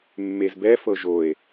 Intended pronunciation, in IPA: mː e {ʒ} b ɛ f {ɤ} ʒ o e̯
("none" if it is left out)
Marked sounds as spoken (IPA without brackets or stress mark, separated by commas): z, ɤ